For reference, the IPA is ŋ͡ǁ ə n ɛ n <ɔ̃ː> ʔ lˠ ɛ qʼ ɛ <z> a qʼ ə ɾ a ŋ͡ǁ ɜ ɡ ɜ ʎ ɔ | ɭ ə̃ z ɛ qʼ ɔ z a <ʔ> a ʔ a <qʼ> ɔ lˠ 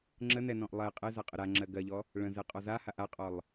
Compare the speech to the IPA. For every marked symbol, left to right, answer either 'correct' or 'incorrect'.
incorrect, correct, incorrect, correct

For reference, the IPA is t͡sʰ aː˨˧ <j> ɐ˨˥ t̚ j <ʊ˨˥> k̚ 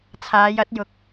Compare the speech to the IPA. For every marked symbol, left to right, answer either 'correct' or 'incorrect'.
correct, correct

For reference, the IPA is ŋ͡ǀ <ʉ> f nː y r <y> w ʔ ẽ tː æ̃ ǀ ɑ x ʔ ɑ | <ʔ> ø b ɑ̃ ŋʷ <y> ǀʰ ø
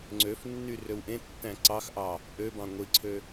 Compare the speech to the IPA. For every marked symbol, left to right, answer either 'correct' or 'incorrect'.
incorrect, incorrect, correct, incorrect

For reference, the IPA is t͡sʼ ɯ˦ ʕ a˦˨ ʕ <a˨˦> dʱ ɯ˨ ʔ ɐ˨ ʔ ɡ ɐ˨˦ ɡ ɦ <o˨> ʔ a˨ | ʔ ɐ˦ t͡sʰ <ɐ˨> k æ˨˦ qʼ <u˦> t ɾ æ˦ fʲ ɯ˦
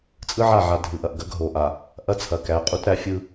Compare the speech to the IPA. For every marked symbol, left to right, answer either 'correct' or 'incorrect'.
incorrect, correct, correct, correct

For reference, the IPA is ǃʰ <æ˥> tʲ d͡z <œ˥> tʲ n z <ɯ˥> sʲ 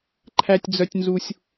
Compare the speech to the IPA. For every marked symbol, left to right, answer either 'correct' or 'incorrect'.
correct, correct, incorrect

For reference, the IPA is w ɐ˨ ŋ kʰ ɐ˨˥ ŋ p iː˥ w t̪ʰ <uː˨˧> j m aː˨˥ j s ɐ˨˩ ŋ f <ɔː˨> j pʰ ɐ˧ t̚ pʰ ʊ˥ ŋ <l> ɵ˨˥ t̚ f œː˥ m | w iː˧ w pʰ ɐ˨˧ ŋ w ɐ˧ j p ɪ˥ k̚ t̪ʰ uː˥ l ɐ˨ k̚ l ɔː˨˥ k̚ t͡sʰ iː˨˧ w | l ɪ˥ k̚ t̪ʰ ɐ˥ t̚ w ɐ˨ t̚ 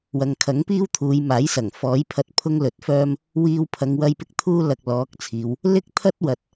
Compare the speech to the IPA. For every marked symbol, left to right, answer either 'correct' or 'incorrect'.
correct, incorrect, correct

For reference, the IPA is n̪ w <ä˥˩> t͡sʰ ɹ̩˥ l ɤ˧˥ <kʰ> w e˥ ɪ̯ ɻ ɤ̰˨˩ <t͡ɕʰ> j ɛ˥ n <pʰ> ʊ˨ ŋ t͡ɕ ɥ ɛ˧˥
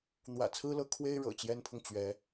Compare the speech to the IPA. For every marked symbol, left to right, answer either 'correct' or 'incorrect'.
incorrect, correct, incorrect, correct

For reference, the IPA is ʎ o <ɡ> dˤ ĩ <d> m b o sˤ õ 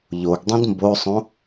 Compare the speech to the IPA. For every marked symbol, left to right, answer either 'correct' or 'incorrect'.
correct, correct

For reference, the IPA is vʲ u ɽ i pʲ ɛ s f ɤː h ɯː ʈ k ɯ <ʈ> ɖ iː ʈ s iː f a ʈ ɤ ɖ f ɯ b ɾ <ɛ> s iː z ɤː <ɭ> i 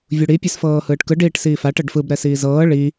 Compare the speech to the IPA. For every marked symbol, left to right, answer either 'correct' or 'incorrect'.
incorrect, correct, correct

